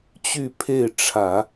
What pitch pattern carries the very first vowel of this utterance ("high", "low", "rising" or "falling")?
falling